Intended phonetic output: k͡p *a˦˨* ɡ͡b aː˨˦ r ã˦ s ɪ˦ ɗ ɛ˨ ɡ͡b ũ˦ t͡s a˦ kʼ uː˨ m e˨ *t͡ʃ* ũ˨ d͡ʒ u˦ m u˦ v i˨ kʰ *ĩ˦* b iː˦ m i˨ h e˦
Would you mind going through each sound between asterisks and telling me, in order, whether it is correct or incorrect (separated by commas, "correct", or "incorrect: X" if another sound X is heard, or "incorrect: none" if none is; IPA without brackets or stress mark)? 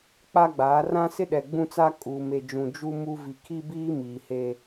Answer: incorrect: a˦, incorrect: d͡ʒ, incorrect: i˦